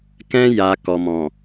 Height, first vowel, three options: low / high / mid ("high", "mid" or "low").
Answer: mid